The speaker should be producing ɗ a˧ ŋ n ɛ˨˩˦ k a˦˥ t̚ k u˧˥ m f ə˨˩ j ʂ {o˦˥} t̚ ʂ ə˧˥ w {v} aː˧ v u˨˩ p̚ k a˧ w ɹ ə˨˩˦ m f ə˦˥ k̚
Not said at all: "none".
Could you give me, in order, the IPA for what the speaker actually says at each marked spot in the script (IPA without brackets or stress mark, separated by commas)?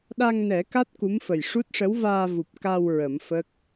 u˦˥, v